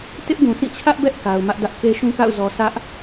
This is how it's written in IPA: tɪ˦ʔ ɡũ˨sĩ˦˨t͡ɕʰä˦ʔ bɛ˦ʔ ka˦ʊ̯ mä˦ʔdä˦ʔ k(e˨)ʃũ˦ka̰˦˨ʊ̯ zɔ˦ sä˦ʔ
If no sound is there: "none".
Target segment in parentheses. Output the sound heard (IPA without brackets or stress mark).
e˦